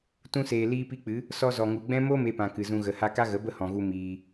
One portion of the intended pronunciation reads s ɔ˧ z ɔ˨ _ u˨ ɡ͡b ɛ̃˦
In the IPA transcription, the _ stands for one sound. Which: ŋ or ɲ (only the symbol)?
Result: ŋ